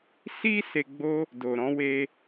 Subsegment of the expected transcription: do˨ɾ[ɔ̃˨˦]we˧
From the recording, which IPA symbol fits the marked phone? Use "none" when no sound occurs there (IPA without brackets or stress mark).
ɔ̃˨˦